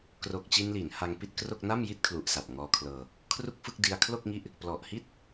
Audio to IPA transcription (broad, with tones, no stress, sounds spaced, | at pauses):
k r o˨˩ k̚ t͡ɕ i˧ n l i˩˦ n h a˧ ŋ p i˥˩ t̚ k r o˥˩ k̚ n a˥˩ m j i˥˩ t̚ kʰ l u˨˩ ʔ s a˨˩ p̚ ŋ ɔː˧ kʰ l ɤː˧ | kʰ r u˥˩ k̚ f ɯ˥˩ k̚ d i˧ a̯ kʰ l o˥˩ k̚ ŋ i˦˥ ʔ | p l ɔ˨˩ ʔ h i˥˩ t̚